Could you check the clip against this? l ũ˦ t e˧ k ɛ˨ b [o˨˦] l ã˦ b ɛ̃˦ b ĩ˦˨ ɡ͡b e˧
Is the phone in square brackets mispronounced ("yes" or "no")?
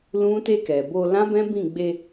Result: yes